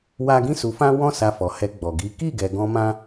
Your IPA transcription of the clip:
w a˦ ɡ ĩ˦ s u˧ f ã˦ w ɔ̃˦ s a˧ f ɔ˨ h ɛ˧ ɡ͡b ɔ˨ ɡ i˨˦ k i˦˨ ɡ ɛ˨ ɡ ɔ̃˧ m ã˦

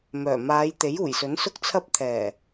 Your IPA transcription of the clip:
m œː˨˩ m aː˨˧ j t̪ e˨˥ j uː˨˩ j s ɵ˨˥ n s ʊ˥ k̚ t͡sʰ ɐ˥ p̚ t̪ʰ ɛː˨˩

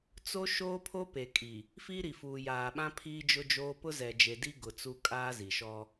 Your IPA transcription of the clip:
t͡s o˦ ʃ oː˦ pʰ o˦ p e˨ kʼ i˨ | f iː˦ ɾ i˨ f uː˨ j aː˨ ɓ ã˦ pʰ iː˦ d͡ʒ ʊ˦ d͡ʒ oː˦ p ʊ˦ z ɛ˨ d͡ʒ e˨ d i˦ ɡ ʊ˨ t͡s u˦ kʼ aː˦ z i˨ ʃ ɔ˦

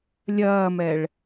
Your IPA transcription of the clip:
lʲ ɐː m ɛ ɭ

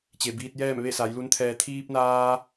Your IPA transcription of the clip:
t͡ɕ e˩ b iː˧ t̚ j ɛː˥˨ m ʋ e˥˨ s a˩˧ j l u˧˥ n t̪ʰ ɛː˧ t̪ʰ iː˧ p̚ n aː˧

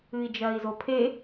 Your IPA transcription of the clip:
ɨ i̯ d͡ʒ ɐː i̯ z o pʰ e

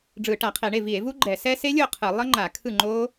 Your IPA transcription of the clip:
ɖ͡ʐ ɯ˧˩˧ ʈ a˧˩˧ qʰ e˧˩˧ ɳ e˥˩ v i˧˩˧ e̯ v u˦˥ ɡ͡ǃ ɛ˧˩˧ s ɛ˦˥ s e˦˥ lʲ o˥˩ qʰ ɯ˧˩˧ lˠ ʌ˦˥ ŋ͡ǃ a˧˩˧ kʰ ɯ˥˩ ŋ͡ǃ o˦˥

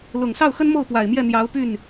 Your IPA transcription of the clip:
l ʊ˨˩ ŋ s ɑ˥˩ ʊ̯ x ə˥ n m o˥˩ ʊ̯ p w a˨˩ ɪ̯ m j ɛ˥˩ n̪ j ɑ˧˥ ʊ̯ p y˥˩ n

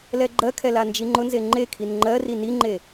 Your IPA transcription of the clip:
l ɛ ɡ͡ǃ ɜ kʰ ɛ l a n d͡ʒ i ŋ͡ǃ ʊ n z e ŋ͡ǃ e kʰ i n ŋ͡ǃ ɜ r i n i ŋ͡ǃ e

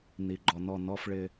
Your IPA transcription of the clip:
n i˨ ɡ͡ǃ ɔ˨ n ɔ˦˨ n ɔ˦ f ɭ ɪ˦

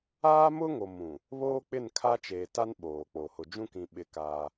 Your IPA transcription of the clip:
aː˦ m ʊ˦ ŋ o˨ m ũ˨ | β oː˦ k͡p ɪ˦˨ n kʰ a˦ t͡ʃ eː˨ t a˦ n ɓ oː˨ k͡p o˨ h ʊ˨ d͡ʒ ũ˦ k ĩ˨ ɓ ɪ˨ k aː˦

